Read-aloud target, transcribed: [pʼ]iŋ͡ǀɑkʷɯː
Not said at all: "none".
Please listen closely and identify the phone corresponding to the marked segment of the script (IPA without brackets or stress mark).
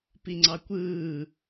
p